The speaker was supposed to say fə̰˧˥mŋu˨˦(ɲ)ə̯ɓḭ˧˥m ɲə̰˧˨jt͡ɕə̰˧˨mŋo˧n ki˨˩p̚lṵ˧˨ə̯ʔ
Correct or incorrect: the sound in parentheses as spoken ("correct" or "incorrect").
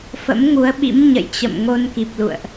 incorrect